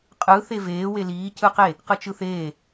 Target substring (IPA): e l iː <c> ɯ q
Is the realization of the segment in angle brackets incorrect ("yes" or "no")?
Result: no